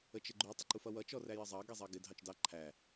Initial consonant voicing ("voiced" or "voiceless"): voiceless